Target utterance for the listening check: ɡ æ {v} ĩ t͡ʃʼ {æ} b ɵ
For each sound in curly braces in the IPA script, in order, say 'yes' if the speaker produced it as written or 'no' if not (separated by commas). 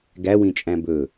no, no